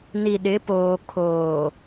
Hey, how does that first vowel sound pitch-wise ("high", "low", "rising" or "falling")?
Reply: low